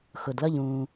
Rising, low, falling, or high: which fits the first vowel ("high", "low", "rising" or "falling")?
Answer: low